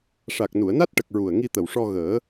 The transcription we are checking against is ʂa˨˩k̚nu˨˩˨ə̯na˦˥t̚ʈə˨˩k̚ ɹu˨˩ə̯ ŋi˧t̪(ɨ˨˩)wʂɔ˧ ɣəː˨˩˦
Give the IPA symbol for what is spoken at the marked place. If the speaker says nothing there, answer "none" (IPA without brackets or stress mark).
ə˨˩